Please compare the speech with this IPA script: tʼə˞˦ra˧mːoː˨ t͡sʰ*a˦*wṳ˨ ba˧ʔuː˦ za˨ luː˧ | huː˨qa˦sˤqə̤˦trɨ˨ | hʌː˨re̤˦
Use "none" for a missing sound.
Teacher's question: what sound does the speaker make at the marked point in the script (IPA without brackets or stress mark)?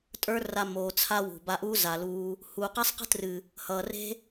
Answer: a˦